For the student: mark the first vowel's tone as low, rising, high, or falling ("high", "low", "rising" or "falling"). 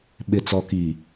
low